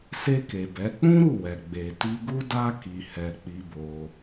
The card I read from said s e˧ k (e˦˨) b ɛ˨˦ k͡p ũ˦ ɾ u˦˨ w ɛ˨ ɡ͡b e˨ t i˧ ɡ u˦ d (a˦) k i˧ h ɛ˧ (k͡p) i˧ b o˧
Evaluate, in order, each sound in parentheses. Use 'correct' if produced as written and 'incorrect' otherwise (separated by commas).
incorrect, correct, correct